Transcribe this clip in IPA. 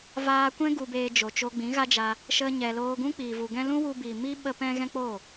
v aː˧ kʷ ɛ̃˦ ɡ u˧ b eː˧ d͡ʒ o˨ t͡ʃ o˧ ɡ͡b ĩ˨˦ ɣ a˦ d͡ʒ a˧ | ʃ ə˧ ɲ ɛ˨ l oː˧ ɡ ũ˦ k͡p iː˨ v u˨ ɡ ɛ̃˦ l ũ˦ w u˧ b i˨ m i˦ ɓ ə˦ p ɛ̃˦ ɣ ɛ̃˦ k͡p oː˦˨

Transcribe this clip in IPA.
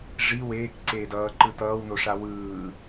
ʐ i w eː k ǀ eː d ʌː ǃ ɯ t ʌː w n o ʂ a w ɯː

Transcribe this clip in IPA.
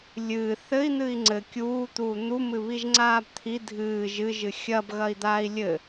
lʲ ɨː θ ɘ i̯ n̪ ɨ i̯ ŋ͡ǀ ɘ kʲ uː t̪ uː n̪ u m ɨ β i ʒ ŋ͡ǀ aː b t̪ʰ i dʱ ɨː ʒ ɨ ʒ ɨ xʲ ɐ b ɣ ɐ i̯ d̪ aː i̯ lʲ ɘ

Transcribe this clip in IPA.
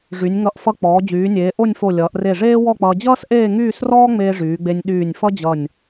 ʐ y˩˧ nʲ ŋ ʌ˧˩ ʔ f ʌ˧ k͡p ɔː˩˧ d͡ʑ yː˩˧ nʲ eː˩˧ ʔ o˥˧ nʲ f o˧˩ lʲ ʌː˩˧ ʔ r e˧˩ ʐ eː˥ w ɔ˥˧ k͡p ʌː˧ d͡ʑ ʌː˥ s ʔ eː˥˧ ŋ yː˥˧ s r ɔː˥ ŋ͡m eː˧ ʐ yː˩˧ ɡ͡b e˧ nʲ ɗ yː˧˩ nʲ f ʌ˥ d͡ʑ ʌ˧˩ nʲ

